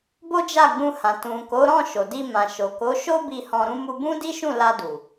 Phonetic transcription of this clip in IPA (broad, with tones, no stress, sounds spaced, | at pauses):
b o˦ d͡ʒ a˦˨ ɡ͡b ũ˧ h ã˨ t ũ˨ k o˨˦ ɾ ɔ̃˦˨ ʃ o˨ d i˧ m ã˨ ʃ o˨ k o˨˦ ʃ o˦ b i˧ h ɔ̃˧ ɾ ũ˦ m u˧ b ũ˦ d i˦ ʃ ũ˦˨ l a˧ d u˨